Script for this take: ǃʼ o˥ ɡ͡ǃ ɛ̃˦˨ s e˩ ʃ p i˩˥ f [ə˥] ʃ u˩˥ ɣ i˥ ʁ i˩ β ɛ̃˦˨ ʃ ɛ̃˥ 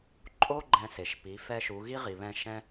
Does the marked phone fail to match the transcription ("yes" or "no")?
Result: yes